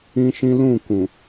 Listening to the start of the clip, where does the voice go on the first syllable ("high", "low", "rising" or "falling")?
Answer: high